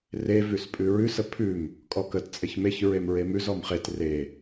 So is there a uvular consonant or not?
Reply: yes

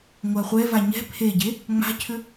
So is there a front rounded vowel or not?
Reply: yes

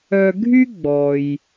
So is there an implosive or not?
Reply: no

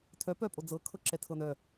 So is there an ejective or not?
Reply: yes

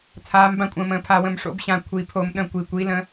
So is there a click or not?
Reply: no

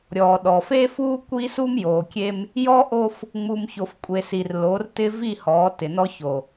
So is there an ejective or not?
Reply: yes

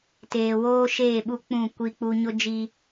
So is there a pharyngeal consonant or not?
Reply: no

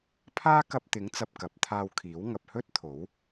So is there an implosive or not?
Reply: no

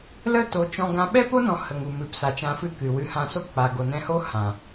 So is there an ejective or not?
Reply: no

